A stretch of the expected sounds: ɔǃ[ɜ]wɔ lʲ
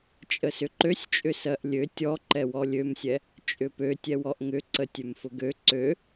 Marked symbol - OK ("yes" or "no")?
no